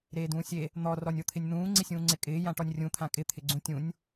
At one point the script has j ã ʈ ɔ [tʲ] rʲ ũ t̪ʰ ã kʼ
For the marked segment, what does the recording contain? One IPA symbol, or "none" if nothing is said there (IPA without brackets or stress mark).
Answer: nʲ